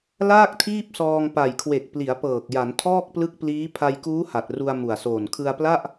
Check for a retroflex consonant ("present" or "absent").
absent